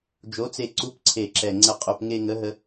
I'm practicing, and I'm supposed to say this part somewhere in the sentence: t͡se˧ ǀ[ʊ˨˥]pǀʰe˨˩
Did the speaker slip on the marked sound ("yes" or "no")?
yes